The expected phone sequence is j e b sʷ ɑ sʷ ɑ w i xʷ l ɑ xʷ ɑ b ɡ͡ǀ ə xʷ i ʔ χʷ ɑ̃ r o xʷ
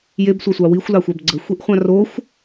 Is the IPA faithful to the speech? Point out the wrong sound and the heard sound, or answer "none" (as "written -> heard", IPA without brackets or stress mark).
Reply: none